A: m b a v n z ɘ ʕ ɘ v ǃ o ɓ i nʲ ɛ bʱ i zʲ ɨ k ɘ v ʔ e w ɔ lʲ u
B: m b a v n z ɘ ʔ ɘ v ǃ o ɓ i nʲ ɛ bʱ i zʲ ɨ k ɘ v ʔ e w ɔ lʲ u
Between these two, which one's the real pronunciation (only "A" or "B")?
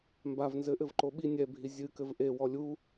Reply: B